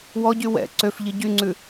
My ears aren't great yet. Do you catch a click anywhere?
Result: yes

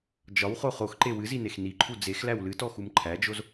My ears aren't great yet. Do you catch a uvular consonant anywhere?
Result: yes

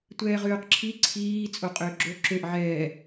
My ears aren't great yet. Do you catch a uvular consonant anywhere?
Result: yes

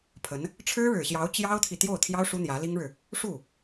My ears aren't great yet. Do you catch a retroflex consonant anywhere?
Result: yes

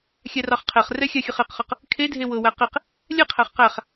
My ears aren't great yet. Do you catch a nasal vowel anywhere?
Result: no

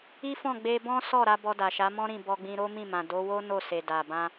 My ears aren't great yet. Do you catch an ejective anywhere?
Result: no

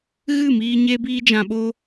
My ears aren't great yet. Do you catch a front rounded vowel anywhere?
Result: no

